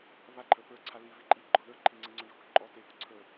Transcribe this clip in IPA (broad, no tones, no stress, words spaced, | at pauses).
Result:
βaǃʰə˞ pə˞ǀʰa livi ǃʼiɡ͡ǃɔ ðə˞ ǃʰiŋ͡ǀeŋ͡ǀɔɳɖʱok ǃʼɔ tepɔ ǀʰə˞